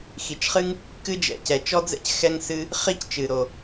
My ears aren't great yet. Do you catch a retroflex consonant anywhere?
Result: no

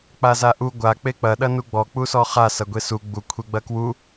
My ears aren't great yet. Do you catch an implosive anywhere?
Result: yes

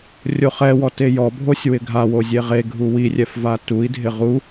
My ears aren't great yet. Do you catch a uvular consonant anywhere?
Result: yes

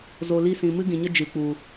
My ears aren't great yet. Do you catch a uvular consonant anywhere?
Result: no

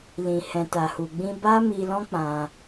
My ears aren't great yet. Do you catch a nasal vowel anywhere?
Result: yes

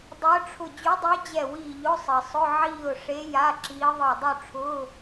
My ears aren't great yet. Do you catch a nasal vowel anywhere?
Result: no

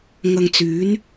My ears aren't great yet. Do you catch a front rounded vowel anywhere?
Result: yes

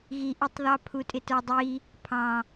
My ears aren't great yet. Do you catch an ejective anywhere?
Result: yes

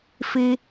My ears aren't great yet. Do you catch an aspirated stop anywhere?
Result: no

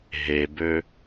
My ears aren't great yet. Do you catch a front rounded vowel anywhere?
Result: yes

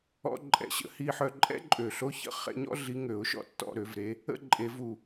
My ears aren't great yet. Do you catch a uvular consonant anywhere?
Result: yes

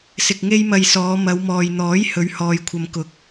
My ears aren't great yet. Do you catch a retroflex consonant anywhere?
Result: no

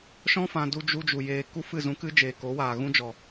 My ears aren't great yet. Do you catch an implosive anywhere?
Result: no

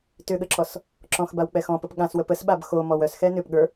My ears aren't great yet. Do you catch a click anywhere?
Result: yes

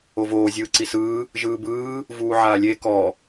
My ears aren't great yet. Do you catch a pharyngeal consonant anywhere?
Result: yes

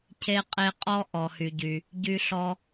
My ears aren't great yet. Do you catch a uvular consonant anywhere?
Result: yes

